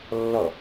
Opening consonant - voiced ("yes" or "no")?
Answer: yes